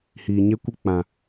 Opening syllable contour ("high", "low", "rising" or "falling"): low